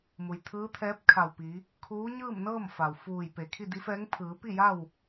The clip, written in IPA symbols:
m u˩ j t̪ʰ ɯː˧˥ t̪ʰ ɛː˧˥ p̚ kʰ a˧˩ w p i˩˧ | kʰ uː˧˥ ɲ ɯː˥˨ m n ɤː˥˨ m f a˩ w f uː˧˩ j p e˩ kʰ i˥˨ d i˧˥ f ɛː˧˥ ŋ pʰ ɯː˩˧ p i˥˨ j a˥˨ w

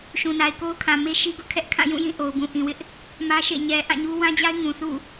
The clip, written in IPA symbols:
ʃ ũ˨ n a˨ ɪ̯ k o˦ ʊ̯ kʰ ã˨ m e˦ ʃ i˦ ɡ ʊ˦ ʔ kʰ ɛ˦ ʔ kʰ ã˦˨ j ũ˦˨ j ĩ˦˨ ʔ o˨ ʊ̯ b ũ˨ ʔ ĩ˨ w ɪ˦ ʔ | m ä˦ ʃ ḛ˦˨ ɲ ɛ˨ ʔ ã˦˨ ɲ u˦ w ã˦ d͡ʑ a˦ ɪ̯ ŋ ũ˨ θ ṵ˦˨

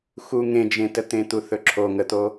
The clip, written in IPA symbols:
x u ŋ ẽ d͡ʒ ẽ t ə t̪ ẽ t̪ u θ ɵ ǁʰ o ŋ ə t̪ o

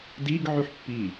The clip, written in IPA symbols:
d i ɡ ʕ y ħ pː i

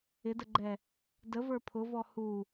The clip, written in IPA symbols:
ɪ d ə ɡ͡ǃ ɛ | d ə v ə˞ pʰ ʊ v ɔ h u

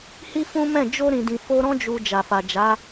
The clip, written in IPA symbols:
h i˦ f ũ˦ m ɛ̃˦˨ d͡ʒ o˧ ɾ ĩ˨ d ĩ˨ f o˧ ɾ ɔ̃˦ d͡ʒ u˧ d͡ʒ a˨ f a˨ d͡ʒ a˨˦

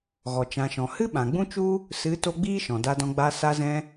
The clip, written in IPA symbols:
ɣ ɔ˨ t͡ʃ ã˨ ʃ ɔ̃˨ h ɨ˦ ɓ ã˨ ɡ͡b ũ˦ t͡ʃ u˦ | s ɨ˨˦ t o˧ ɡ͡b iː˦ ʃ ɔ̃˨ d a˧ d ɔ̃˧ ɡ͡b a˧ s a˧ z ɛ̃˧

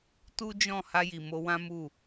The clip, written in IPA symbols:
t u˦ d͡ʒ ɔ̃˦˨ h a˧ j i˨ m o˧ w ã˦ m u˦˨

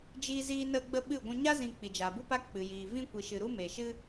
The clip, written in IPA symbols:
d͡ʒ iː˦ z iː˦ n ə˦ ɡ͡b ə˦ ɓ ɨ˦˨ ɡʷ ũ˧ ɲ a˦ z ĩ˧ k͡p i˨ d͡ʒ aː˨ b u˦ p a˦ k͡p ɨ˨ j iː˨ v ĩ˦ kʷ i˨ ʃ ɨ˨ ɾ u˦ m e˨ ʃ ɨ˦

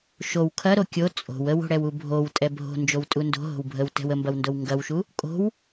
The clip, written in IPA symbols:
ʃ o w kʰ ɐ ɾ o kʲ o t͡sʼ o̤ w ə w o̤ ɽ ɛ w u bʱ o w tʼ ɛ bʱ o̤ n d͡ʒ o w tʼ u n d o̤ ɦ o̤ w bʱ ə w t ɛ̤ w ə m b ɐ w n d o w ŋ ɡ ɐ w ʃ u | kʼ o̤ w

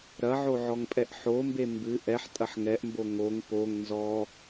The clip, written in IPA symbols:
ɾ ɐ ʕ o ʕ ɔ ŋ pʼ ɛ ʔ ħ o m b e m b ɨ ʔ ɛ ħ tʼ ɐ ħ ŋ ɛ ʔ m b o ŋ o ŋ p o ŋ n z ɔ

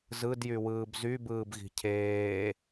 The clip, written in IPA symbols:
z ɯ d j y w ɯː b z y b ɯː b ɣ i̤ cʰ eː

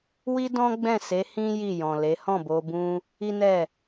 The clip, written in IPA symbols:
w i˦ d ɔ̃˦ ɡ͡b ɛ̃˦˨ s e˨˦ h ĩ˦ j i˦˨ j ɔ̃˨ l e˨˦ h ɔ̃˦˨ b o˧ b ũ˦ | i˦ n ɛ˦˨

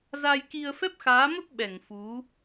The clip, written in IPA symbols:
z a˧ j k i˧ ə̯ f ɛ˦˥ p̚ x aː˨˦ m ə˦˥ p̚ ɓ ɛ˧˩ ŋ f u˨˦

